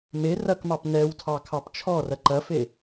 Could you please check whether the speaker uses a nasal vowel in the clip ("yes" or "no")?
no